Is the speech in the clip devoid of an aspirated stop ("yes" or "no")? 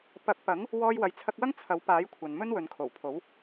no